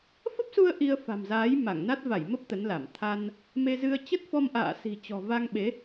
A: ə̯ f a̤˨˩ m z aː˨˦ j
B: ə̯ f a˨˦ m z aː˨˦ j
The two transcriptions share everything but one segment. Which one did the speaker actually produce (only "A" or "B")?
A